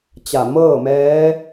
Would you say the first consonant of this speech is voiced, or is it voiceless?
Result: voiceless